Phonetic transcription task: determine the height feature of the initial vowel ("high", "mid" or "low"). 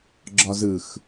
low